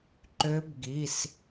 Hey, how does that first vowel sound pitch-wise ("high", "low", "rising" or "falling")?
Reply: rising